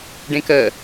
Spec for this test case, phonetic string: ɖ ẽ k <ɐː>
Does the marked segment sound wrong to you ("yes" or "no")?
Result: yes